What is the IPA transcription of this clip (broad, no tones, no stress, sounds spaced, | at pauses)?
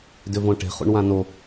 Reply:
d ʏ v õ ʈ e̤ χ ṵ ɳ w ã n o